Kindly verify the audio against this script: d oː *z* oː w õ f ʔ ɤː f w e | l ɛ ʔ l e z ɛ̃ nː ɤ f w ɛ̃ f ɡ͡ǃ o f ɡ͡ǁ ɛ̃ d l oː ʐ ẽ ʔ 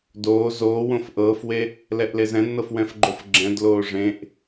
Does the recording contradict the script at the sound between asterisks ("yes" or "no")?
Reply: no